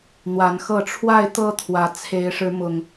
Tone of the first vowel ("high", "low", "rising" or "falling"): rising